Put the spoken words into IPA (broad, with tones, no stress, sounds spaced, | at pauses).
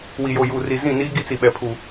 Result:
w i˨ j o˨ j uː˨ r i˨ z ĩ˦˨ n iː˦ ɡ i˦ t͡s i˨ ɓ ɛ˨ pʰ u˨